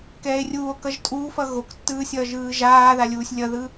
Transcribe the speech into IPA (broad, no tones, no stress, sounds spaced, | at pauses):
k ɛː e̯ rʲ uː o̯ k ʌ ʒ tʼ uː f ʌ ɣ o k tː ɯː sʲ ʌː ʒ ɯː ʒ aː ð a lʲ uː sʲ lʲ ʌ ð ɯ